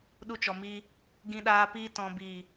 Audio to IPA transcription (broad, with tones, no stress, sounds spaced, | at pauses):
ɗ u˧ t͡ʃ ɔ˨ m iː˧ | ɡ ĩ˧ ɗ aː˧ p iː˧ t ɔ̃˨ b iː˨